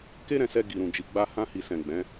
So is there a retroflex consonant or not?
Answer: no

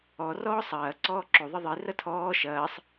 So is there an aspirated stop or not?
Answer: yes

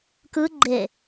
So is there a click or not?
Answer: yes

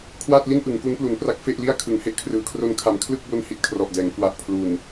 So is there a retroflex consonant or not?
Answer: no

